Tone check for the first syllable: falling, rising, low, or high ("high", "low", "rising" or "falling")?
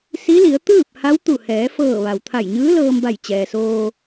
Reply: rising